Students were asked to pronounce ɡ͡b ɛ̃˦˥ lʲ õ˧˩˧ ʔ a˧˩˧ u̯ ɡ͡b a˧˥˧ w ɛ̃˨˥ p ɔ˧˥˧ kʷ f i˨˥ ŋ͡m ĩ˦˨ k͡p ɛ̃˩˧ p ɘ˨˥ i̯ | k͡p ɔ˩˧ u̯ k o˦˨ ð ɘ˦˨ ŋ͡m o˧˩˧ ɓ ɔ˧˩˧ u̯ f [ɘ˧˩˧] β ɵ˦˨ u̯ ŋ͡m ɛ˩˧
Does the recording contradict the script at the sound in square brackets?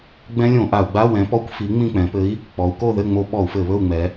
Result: no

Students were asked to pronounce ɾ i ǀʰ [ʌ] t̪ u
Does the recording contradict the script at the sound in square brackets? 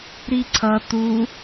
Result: no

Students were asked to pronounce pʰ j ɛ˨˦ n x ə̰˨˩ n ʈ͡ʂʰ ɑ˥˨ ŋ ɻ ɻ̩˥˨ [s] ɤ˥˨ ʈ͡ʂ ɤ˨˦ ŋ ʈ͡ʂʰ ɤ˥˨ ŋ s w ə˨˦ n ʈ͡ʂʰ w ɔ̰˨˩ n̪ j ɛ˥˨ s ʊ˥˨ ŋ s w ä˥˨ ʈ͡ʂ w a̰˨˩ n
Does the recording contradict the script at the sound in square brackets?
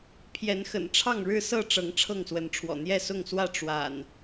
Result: no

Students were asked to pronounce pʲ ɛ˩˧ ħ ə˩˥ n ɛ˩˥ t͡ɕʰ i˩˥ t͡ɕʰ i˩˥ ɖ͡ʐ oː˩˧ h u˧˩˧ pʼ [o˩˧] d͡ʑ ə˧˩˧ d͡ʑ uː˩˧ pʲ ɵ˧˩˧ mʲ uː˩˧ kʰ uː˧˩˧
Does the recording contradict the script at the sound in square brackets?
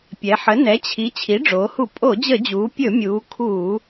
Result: yes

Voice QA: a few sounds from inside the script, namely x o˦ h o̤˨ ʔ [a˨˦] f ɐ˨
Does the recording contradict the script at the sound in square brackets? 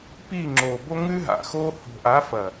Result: no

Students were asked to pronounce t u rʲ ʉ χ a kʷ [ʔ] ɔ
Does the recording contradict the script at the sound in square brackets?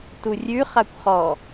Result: yes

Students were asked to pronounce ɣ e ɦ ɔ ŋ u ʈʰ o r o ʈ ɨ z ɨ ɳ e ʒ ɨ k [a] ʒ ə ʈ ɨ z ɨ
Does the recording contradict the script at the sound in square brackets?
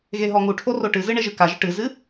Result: no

